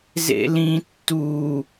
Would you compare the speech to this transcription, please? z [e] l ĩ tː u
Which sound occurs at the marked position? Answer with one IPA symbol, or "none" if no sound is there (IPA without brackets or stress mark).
ḛ